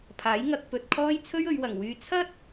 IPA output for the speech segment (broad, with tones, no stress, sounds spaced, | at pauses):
pʰ aː˨˥ j ŋ ɐ˨ k̚ p ɵ˧ t̚ kʰ ɔː˥ j t͡sʰ ɵ˥ ɥ ɵ˨˧ ɥ w ɐ˨˩ ŋ w yː˧ t͡sʰ ɐ˥ t̚